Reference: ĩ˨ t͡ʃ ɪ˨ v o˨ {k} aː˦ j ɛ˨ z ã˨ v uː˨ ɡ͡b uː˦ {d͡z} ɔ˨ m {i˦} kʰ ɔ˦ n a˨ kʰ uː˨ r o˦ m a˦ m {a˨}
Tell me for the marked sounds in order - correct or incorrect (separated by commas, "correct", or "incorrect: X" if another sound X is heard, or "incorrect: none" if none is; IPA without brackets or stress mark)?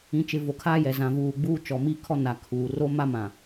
incorrect: kʰ, incorrect: t͡ʃ, correct, incorrect: ã˨